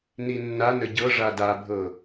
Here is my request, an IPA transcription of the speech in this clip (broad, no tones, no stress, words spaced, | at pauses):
ninːanə ɟɤ ʐadabʱɤ